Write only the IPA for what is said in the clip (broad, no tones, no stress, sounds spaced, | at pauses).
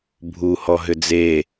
bʱ u h ɔ ɦ ʏ d͡z e